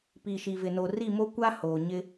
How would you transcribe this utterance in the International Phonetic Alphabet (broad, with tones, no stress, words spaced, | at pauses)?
pi˨ʃi˨vɪ˨no˨ ri˦˨mo˦kʷa˦ hoː˨ɲɪ˦